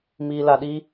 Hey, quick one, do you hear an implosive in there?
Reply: yes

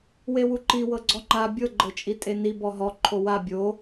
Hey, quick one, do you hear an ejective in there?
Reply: yes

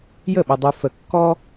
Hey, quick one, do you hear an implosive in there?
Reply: yes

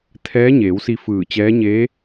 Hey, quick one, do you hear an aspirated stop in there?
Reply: yes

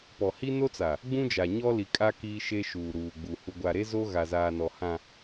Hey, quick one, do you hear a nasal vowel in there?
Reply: yes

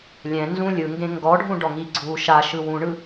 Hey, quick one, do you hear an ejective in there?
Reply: no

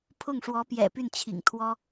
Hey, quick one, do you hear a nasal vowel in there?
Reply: no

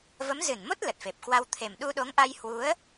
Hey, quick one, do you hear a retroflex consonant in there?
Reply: no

